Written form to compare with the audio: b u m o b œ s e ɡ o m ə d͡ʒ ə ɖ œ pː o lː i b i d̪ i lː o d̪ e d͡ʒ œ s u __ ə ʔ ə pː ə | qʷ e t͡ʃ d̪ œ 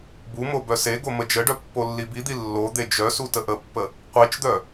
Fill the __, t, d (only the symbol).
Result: t